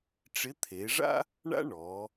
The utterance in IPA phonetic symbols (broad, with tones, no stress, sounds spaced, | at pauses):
ʈ͡ʂ ɪ˧˥ t̪ʰ e˩˧ ʐ a̰˥ | ɳ a̰˥ ɳ ɔ˩˧